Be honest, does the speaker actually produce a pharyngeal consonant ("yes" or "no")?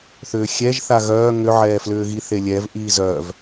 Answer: yes